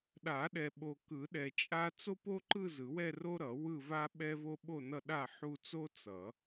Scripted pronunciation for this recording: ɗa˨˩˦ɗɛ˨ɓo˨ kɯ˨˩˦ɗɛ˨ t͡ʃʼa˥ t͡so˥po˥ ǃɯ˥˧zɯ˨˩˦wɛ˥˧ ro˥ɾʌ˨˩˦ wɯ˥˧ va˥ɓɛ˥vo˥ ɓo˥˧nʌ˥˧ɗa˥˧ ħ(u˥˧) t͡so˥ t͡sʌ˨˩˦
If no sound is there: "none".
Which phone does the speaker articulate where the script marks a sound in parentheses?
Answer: u˥˧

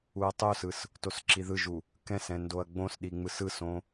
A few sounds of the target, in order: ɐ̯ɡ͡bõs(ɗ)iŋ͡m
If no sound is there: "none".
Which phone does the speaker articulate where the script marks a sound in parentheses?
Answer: ɗ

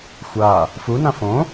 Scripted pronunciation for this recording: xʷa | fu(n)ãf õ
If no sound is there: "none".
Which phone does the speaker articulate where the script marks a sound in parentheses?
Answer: n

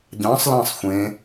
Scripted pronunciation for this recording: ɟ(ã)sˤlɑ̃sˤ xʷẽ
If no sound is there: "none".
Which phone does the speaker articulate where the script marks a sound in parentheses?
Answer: ɑ̃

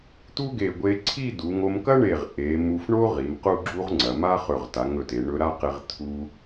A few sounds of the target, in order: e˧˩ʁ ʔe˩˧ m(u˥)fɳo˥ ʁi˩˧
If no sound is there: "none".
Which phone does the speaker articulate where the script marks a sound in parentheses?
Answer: u˧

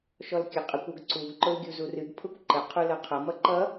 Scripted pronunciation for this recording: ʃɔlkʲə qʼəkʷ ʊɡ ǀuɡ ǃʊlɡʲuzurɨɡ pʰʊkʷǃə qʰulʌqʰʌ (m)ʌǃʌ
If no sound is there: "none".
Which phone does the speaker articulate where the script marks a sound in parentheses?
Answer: m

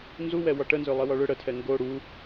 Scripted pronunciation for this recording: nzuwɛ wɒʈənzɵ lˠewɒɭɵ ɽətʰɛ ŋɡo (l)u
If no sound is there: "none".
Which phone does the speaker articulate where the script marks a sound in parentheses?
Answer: ɽ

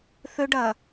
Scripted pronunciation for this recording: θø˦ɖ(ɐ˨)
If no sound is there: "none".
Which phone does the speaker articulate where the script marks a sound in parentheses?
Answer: ɐː˨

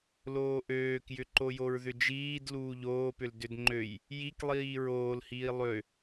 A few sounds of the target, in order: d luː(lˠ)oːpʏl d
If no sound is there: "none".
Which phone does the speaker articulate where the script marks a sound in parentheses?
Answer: ʎ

